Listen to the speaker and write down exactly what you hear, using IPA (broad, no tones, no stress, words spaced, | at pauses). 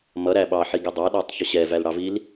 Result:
mʌɾæ ɓɑħiɡɛ dˤɑɗɑtˤçʊ ɕɛvælɽɑvil